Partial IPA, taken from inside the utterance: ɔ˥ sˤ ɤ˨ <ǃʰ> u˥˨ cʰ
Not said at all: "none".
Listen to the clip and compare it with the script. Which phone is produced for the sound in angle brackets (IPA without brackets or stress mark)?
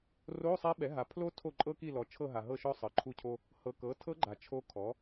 ǃʰ